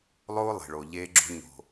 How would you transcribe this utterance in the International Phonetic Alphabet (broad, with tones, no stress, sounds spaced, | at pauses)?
lˠ oː˦ lˠ e̤˨ ɭ o˨ ʎ eː˦ ɡ͡ǁ o̤˦ ɲ o̤˨